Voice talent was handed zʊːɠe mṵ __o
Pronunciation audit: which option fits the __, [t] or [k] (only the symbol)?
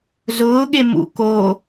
k